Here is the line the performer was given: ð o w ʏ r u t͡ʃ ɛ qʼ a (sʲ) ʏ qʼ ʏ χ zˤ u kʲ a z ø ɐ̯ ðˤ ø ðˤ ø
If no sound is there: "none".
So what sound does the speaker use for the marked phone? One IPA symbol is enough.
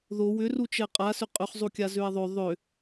s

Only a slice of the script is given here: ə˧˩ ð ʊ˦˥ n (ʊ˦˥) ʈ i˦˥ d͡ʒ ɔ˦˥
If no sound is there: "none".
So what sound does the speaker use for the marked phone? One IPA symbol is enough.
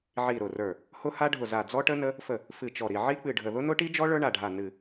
ʊ˦˥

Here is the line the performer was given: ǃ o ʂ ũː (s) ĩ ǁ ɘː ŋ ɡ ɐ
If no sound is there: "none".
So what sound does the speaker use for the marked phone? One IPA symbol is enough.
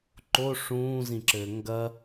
z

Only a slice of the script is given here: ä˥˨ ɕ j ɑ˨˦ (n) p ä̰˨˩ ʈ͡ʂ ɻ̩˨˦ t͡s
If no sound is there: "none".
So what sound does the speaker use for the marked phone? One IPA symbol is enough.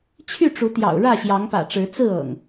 ŋ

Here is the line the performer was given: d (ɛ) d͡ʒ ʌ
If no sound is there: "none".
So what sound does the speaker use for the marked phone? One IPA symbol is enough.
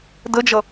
ə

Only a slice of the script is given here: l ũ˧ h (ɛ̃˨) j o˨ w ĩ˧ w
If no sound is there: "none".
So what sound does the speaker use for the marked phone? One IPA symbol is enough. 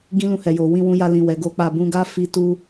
ɛ˨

